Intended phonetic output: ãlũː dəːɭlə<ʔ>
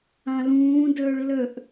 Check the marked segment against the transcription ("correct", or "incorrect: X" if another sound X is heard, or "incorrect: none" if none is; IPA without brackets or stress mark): correct